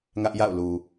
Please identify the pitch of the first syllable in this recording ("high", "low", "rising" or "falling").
high